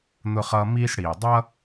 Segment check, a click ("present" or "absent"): absent